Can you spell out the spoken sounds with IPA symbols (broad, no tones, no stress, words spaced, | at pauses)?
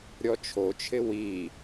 ɾʲɔt͡ʃʰot͡ʃʰɪ wi